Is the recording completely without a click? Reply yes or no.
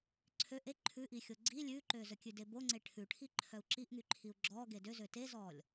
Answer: no